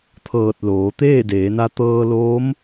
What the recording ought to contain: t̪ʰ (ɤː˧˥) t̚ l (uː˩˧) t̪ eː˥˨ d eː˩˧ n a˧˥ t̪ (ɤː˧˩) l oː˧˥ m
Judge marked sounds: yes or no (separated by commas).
no, no, no